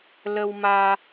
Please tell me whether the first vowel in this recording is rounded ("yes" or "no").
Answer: no